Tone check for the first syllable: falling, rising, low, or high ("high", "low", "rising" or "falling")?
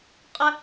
high